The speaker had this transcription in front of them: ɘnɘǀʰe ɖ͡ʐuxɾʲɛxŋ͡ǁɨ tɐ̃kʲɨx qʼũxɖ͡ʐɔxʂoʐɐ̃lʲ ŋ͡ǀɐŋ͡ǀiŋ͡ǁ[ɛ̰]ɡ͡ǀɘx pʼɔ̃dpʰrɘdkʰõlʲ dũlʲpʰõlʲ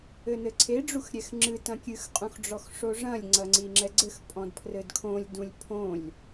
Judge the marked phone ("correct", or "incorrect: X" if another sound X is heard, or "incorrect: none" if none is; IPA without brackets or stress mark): incorrect: ɛ